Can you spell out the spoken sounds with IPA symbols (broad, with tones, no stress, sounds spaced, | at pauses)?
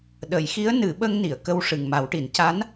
ɗ ə˨˩˨ j x i˧˥ ə̯ n ɨ˨˩˦ ɓ ə˧ ŋ n i˨˩˨ ə̯ k ə˧ w ʂ ɨ˨˩ ŋ m a˨˩˦ w ʈ i˨˩˦ n c a˧˥ n